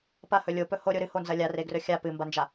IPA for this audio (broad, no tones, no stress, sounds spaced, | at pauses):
p ɐ h ɵ lʲ o p ɵ h o ɾʲ o ɾ ɨ h o n z ɐ lʲ a r e ɡ r ɵ xʲ a p ɨ m b ɐ n d͡ʒ a